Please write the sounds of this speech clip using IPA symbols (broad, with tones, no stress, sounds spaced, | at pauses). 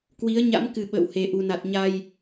k w i˨˦ ə̯ ɲ a̰˧˥ m k ɨ˨˩ ɓ ə̰ː˧˨ w h e˨˩ ʔ u˨˩ n a˨˩ t̚ ɲ a˨˩ j